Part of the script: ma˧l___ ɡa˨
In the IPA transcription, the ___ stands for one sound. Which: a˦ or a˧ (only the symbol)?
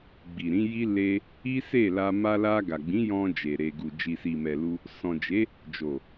a˧